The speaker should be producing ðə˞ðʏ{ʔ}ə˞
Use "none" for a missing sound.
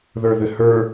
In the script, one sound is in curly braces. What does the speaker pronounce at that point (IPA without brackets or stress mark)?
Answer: h